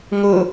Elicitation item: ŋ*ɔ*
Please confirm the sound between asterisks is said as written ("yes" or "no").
no